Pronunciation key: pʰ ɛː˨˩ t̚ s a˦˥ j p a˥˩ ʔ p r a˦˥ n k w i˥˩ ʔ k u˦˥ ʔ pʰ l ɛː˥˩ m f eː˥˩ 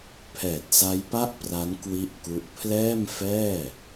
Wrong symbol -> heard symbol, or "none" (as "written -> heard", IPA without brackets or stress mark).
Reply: eː˥˩ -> ɛː˥˩